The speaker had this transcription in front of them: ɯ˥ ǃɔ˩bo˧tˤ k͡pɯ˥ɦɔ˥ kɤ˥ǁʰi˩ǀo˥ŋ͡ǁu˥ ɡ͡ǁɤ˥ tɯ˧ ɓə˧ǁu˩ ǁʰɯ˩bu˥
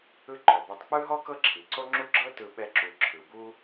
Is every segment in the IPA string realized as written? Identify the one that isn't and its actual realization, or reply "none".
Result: ə˧ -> ɛ˧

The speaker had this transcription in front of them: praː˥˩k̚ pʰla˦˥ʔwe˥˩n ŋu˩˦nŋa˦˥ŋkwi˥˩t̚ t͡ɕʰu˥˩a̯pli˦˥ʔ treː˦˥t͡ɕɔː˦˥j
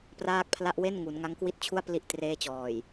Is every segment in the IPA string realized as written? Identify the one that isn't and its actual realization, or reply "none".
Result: ɔː˦˥ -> ɔː˨˩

